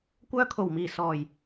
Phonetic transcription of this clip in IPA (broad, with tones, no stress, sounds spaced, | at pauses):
kʷ œː˧ kʰ o˨˩ w m iː˨˩ s ɔː˨˩ j